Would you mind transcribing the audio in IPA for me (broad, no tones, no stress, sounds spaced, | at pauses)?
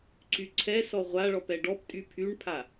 ǀ y ǀʰ ɛ s ɔ ʁʷ a ɭ ɔ p ɛ ɖ ɔ p tʼ y pʰ y ɳ pʰ a